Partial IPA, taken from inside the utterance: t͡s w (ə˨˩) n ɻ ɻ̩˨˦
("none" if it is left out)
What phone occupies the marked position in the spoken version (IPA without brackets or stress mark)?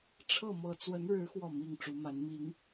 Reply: ə˨˦